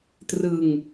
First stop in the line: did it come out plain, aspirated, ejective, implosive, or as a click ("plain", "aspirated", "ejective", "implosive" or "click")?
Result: plain